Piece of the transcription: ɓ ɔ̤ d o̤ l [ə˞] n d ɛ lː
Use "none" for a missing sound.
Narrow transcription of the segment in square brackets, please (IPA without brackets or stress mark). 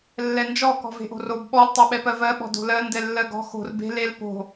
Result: ɜ